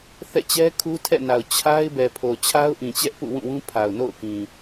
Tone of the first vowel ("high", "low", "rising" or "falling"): falling